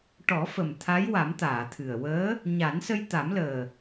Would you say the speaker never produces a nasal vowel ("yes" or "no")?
yes